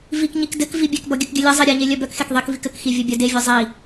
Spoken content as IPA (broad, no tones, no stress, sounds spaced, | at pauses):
v i k ɲ i k d ɘ k v i bʲ e k b ɔ ɡʲ ɘ k ɡʲ ɘ lʲ ɘ zˤ i ɾʲ e ɲ e lʲ œ b œ k x e k ðˤ i k v i k ɘ k x i vʲ ɘ bʲ œ d e vʲ œ zˤ i